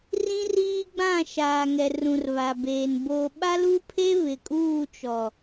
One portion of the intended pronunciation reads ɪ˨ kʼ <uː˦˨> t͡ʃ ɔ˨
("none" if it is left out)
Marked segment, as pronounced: uː˦˨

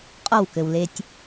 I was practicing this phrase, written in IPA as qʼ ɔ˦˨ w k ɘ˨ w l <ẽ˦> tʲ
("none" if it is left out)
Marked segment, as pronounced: e˦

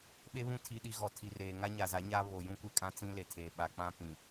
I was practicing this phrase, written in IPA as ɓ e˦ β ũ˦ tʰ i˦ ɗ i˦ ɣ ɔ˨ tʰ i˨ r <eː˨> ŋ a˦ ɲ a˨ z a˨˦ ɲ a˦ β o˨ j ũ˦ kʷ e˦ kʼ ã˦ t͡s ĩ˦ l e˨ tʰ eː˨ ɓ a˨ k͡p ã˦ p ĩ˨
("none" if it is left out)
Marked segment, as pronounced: eː˨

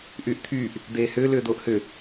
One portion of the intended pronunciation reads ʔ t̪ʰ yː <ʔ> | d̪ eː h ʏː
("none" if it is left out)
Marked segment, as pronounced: ʔ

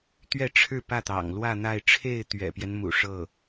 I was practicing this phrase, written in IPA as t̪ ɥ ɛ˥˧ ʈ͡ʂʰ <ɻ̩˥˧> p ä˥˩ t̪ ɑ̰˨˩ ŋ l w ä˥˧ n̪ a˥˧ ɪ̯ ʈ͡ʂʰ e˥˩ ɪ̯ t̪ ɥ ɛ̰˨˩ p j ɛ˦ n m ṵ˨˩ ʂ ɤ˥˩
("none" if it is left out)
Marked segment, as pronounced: ɻ̩˥˧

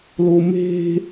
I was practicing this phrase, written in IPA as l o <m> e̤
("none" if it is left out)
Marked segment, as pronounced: m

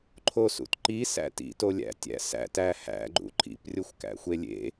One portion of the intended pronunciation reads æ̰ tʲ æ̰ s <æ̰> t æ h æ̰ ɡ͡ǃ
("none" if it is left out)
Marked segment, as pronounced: æ̰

